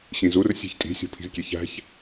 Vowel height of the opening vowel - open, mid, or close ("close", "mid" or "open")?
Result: close